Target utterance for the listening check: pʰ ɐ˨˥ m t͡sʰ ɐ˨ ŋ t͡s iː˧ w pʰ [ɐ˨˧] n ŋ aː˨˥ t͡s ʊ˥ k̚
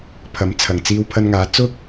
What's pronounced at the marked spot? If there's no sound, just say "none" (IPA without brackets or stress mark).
ɐ˧